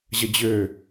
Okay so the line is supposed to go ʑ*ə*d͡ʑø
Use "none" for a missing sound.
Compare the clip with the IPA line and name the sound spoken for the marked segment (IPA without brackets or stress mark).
ə